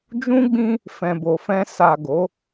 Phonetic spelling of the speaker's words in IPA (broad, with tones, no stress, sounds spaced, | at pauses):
d͡ʒ ũ˦ ɡ͡b ĩ˦ | f ɛ̃˨ b o˨ f ɛ̃˧ s a˨ ɡ o˨˦